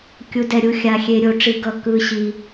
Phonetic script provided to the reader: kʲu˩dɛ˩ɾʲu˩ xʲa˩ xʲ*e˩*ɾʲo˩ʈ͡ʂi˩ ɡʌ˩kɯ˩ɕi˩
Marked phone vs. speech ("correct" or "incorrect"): correct